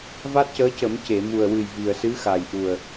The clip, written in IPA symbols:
v a˦˥ t̚ c əː˧˥ c ə˨˩˦ m c e˨˩˨ m u˨˩ ə̯ w ɨ˨˩ j v i˨˩ ə̯ s ɨ˧˥ x a˨˩ j ʔ u˨˩ ə̯

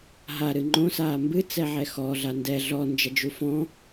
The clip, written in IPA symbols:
ɦ a ɾ ɨ ŋ͡ǃ õ s aː m b ɨ t͡s ɛ ʕ ɛ x ɔ ɮ a n d ɛ ɮ ɔ n d͡ʒ ɐ d͡ʒ u f ɔ̃

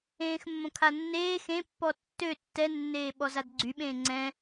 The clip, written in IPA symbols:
ẽː x mː õ kʰ a nː eː x ẽ pː ɔ tː ø tː ɛ nː eː ɓ ɔ z a d ɡ͡ǀ y ɓ ẽː ŋ͡ǀ ɛ̃

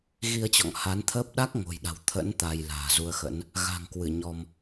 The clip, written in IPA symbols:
ɣ i˧ ə̯ t͡ɕ ɔ̰˧˨ ŋ h a˨˦ n t̪ʰ əː˦˥ p̚ ɗ a˦˥ k̚ ŋ o̤˨˩ j ɗ a̤˨˩ w t̪ʰ ə̰˧˥ n t̪ a˧ j l a̤ː˨˩ z u˧ ə̯ x ə̰˧˥ n | ɣ a̤˨˩ ŋ k w ɨ˧˩ ɲ ɔ˧ m

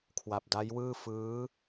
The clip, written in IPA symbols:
kʰ w a˨˩ p̚ d a˦˥ j w ɯː˥˩ f ɯː˦˥

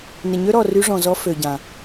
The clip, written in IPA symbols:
n ɪ˨ ɲ ø˦ ɾ ɔ˨ r y˧ ʐ ɔ̃˨ z ɔ˧ f ø˨ ɟ ã˨

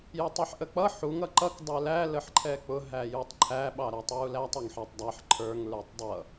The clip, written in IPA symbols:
j ə tˤ ɛ ħ ʔ ə k͡p ʌ ħ u ŋ ʌ ǃ ʌ k dˤ ə˞ l æ l ə ħ ǃʰ ɛ k͡p ʊ ɦ æ j u tˤ ǃʰ æ ɓ ɑ ɾ æ tˤ j u l æ tˤ ɛ ŋ ħ ɑ tˤ dˤ æ ħ ǃʰ ə˞ ŋ l ə˞ tˤ dˤ ʌ

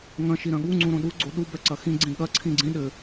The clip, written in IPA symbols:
ŋ ɐ̃ ʃ i ɾ ɐ̃ ɠ u ŋ͡ǀ ũ ɾ õ ɗ u ɡ͡ǀ o ɗ u b ɛ ǀ ɐ x ĩ ɡ͡ǀ ĩ ɠ ɐ ǀʰ ĩ ɡ͡ǀ ĩ ɗ ɘ

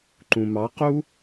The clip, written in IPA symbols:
ǃ ũ m ɑ q u

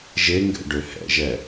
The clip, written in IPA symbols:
ʒ e ŋ ɡ ɛ̰ ɖ ø h ɛ̰ ʒ ɛ

